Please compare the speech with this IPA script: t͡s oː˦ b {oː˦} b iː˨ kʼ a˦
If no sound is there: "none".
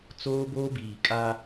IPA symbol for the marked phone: oː˦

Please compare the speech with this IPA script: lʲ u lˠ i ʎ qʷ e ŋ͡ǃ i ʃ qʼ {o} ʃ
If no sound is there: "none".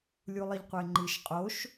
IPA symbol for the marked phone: o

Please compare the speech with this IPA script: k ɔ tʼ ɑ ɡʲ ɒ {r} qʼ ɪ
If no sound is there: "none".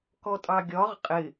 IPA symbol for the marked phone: ʁ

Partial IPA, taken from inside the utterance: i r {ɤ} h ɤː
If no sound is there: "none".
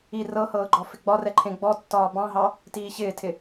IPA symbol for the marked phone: ɤ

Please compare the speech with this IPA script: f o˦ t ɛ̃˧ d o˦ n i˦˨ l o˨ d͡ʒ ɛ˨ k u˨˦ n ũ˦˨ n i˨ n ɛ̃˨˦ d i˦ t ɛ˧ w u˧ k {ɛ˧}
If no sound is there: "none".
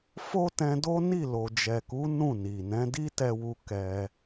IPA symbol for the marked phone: ɛ˧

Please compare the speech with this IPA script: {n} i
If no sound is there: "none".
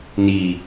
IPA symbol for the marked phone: n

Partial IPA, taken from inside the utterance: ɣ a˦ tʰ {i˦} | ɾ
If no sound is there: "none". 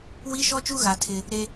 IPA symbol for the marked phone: ɪ˦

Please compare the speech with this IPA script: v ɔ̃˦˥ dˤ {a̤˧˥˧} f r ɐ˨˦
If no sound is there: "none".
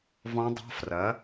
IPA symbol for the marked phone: a̤˧˥˧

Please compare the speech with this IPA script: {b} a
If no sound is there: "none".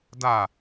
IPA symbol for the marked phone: d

